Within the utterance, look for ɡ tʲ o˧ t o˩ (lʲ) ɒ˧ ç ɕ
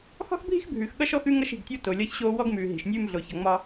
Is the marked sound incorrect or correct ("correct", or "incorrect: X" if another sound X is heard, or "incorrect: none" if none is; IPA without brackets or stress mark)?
correct